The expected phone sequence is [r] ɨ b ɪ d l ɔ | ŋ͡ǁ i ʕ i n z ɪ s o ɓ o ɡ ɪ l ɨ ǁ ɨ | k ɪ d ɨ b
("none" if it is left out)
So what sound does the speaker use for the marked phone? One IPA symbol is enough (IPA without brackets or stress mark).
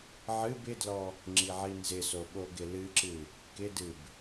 ʕ